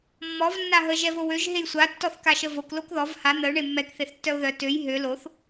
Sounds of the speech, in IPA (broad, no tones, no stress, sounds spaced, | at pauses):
mː ɔ v nː a ɦ ə ʒ ɛ v o w ø ʒ ɦ e j sʷ a tː ɔ θ k a ʃ ə v o k l o k ð ɔ v h a n̪ ə ʊ̯ ɳ e mː ɛ k θ e θ tː œ ʊ̯ ð œ t ø j ɦ ø l o θ